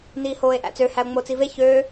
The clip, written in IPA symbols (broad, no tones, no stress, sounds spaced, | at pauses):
n iː h oː e̯ ʔ æ̰ t͡s ø h æ o̯ ŋ͡m o t͡s i v e ç øː